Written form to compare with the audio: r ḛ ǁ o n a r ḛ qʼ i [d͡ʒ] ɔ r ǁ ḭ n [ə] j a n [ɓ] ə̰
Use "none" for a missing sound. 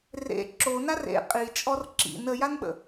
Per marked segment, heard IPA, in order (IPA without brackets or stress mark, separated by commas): t͡ʃʼ, ə, ɓ